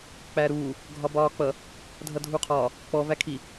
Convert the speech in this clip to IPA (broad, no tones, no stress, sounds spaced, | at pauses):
k͡p æ ɾ uː | ɡʱ ɒ b ɒː k͡p ʌ | dʱ ʌ dʱ u qʰ ɒː | k͡p ɔ v æ kʰ i